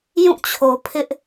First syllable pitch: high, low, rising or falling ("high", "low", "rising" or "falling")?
falling